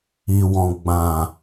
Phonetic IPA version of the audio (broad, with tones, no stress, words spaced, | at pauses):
i˨wɔ̃˨ ɡ͡bã˨